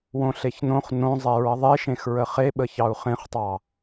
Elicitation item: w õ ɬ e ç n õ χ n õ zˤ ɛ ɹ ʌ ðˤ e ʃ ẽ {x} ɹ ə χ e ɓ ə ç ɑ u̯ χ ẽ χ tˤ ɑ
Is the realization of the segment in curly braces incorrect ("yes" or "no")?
no